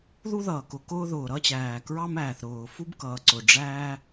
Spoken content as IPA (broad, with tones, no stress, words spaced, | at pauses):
ðu˥ðʌː˩kʊ˩ kʊː˥ðʊː˩ɾʌ˥t͡ɕæː˩ kɹɑ˥mæː˩θ ɾʊː˩fu˥bkʌː˩ ǀʊ˩ɖ͡ʐæː˥